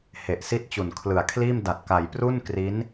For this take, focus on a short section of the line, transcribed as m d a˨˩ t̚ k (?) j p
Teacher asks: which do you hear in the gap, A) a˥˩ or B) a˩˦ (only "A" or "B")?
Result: B